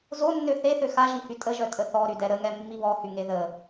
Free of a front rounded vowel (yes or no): no